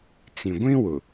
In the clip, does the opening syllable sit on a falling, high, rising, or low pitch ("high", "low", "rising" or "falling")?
low